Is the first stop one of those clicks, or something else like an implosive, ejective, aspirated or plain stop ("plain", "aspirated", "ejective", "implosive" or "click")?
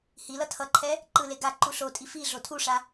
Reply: aspirated